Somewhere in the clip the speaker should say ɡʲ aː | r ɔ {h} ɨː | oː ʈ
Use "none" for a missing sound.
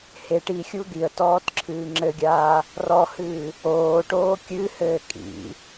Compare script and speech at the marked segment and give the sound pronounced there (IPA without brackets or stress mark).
h